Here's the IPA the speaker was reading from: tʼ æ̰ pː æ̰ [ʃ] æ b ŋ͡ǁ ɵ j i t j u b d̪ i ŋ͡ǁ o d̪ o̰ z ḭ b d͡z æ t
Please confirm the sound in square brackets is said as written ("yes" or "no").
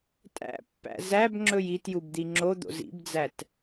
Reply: no